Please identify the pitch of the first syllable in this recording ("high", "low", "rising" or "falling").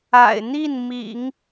low